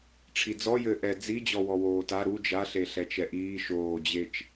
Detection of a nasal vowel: absent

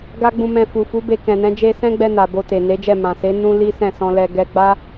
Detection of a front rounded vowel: absent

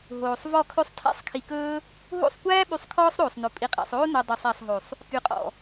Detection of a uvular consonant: present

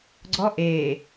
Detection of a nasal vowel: absent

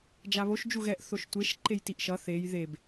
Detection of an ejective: absent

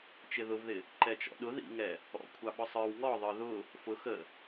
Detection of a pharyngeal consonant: absent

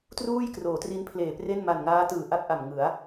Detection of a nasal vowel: absent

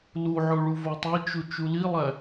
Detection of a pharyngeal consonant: present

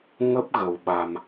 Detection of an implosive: present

